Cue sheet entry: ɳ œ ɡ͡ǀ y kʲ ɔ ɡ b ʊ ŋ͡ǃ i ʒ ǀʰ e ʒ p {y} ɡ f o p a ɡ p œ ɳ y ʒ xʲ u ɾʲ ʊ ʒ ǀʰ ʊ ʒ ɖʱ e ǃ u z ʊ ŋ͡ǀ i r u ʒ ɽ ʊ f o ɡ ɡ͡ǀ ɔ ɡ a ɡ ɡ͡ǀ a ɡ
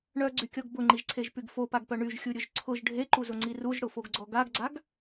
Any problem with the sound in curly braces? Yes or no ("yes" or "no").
no